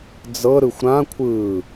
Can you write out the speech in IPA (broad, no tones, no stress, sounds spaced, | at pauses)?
d͡z ɤ ɾ ɯ xʷ ɾ ã kʷʰ ɯː